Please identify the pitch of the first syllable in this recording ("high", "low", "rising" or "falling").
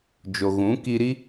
low